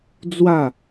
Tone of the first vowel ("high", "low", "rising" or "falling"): falling